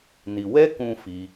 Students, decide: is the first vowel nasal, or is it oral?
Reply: oral